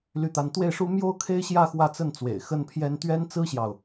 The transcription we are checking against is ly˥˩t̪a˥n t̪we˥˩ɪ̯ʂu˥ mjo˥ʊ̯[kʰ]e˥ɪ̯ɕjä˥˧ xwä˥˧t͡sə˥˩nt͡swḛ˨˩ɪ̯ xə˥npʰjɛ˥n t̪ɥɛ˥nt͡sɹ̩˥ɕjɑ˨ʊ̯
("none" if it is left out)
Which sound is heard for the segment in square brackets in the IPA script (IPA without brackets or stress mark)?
kʰ